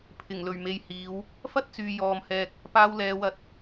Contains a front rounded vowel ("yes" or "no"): yes